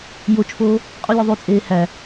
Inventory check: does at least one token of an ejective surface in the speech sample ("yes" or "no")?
yes